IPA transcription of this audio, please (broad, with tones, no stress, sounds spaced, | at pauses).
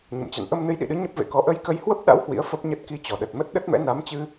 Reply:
ɲ ə̰˧˨ m t͡ɕ a̰˧˨ n ʔ ə˧ m n ɨ˨˦ j ɗ ḭ˧˨ ɗ ɨ˨˦ ɲ ə˦˥ p̚ v ḛ˧˨ k ɔ˨˦ ʔ ə˧ j k ə˧ j h w ə˦˥ p̚ ɗ a̰˧˥ w h w ḭ˧˥ ə̯ f ə˦˥ p̚ ɲ ə˦˥ t̚ k i˧ t͡ɕ ɔ˨˩ ɗ ə˨˩ t̚ m ə˦˥ t̚ ɗ ə˦˥ t̚ m ɛ̰˧˥ n a˨˦ m t͡ɕ ɨ˧